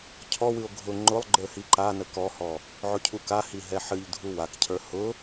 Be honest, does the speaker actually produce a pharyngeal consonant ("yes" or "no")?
yes